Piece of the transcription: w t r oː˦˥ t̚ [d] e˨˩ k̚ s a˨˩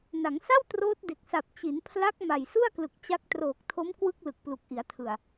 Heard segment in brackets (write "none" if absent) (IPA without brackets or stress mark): d